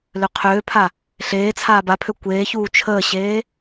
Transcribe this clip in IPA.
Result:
l ø qʰ øː pʰ a | ɬ eː t͡sʰ aː b a pʰ ø kʷ eː ç uː t͡ʃʰ əː ɕ eː

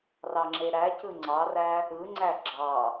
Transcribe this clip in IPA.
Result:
r ɑ ŋ͡ǁ e ɾ æ c ɯ ŋ͡ǀ ɑ r æ | ɯ ŋ͡ǀ æ ɡ͡ǁ ɑ

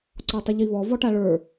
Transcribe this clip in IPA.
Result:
ǀ ɔ tˤ ə ʎ i β ɔ v ɔ ʈ a ɭ ə˞

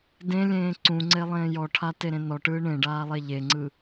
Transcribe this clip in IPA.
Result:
d ẽ lʲ ẽː ǀ ũ ŋ͡ǀ e lˠ ẽː j ɔ ʈʰ a t e ɾ ẽ n ɔ ʈ ɯː ɳ ẽ ɖ aː lˠ e ʎ e ŋ͡ǀ ɯ

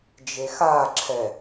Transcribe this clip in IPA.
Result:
d͡ʒ e x a ǁʰ ɛ

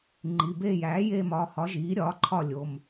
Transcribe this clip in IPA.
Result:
ŋ͡ǃ i˩˧˩ b eː˦˨ j æː˩˥ j e˦˨ m ɒ˩˧˩ h ɒ˩˥ ʒ iː˩˥ ɾʲ ɒː˩˥ ǃʰ ɒ˦˨ lʲ o˩˧˩ m

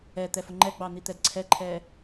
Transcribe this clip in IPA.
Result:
ɛ t̪ ɛ f ʊ ŋ͡ǃ ɛ ɡ͡b ɑ n̪ i t̪ ɛ d ǀʰ ɛ ǃʰ ɛ

